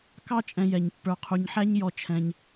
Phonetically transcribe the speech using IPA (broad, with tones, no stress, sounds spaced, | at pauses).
k ɑ˥ t͡ʃʼ ɛ̃˨ j ɛ˩ ɲ pː ə˞˨ qʰ u˨ ɲ ħ æ˥ ɲ j ɔ˨ t͡ʃʰ ɛ̃˨ ɲ